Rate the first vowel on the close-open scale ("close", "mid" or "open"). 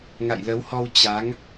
open